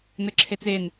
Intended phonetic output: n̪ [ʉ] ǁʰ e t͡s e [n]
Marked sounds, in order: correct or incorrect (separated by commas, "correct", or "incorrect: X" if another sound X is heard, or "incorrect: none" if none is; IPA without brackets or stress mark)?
incorrect: ɘ, correct